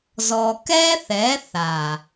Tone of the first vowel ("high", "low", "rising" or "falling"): low